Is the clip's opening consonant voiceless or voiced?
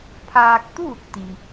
voiceless